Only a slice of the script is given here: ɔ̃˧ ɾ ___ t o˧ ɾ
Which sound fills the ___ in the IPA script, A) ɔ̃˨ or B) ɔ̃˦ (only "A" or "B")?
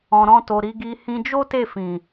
B